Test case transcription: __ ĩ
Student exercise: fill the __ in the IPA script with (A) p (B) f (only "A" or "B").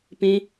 A